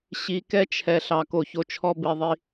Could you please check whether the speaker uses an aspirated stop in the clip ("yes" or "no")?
yes